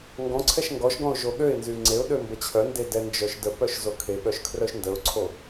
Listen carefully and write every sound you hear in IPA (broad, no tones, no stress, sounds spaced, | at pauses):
ŋ ɡ ɔ̃ ǀʰ ɛ ʃ ŋ ɡ ɔ ʃ ɡ ɔ̃ ʊ̯ ʒ o ɠ ø ɪ̯ n z y ŋ͡ǀ e ʊ̯ ɗ ø m b ə t͡ɕʰ œ n d e d ɛ n d͡ʒ œ ʃ d ə p œ ʃ z o kʰ e ɠ œ ʃ kʰ r œ ʃ n d ə ʊ̯ ǀʰ o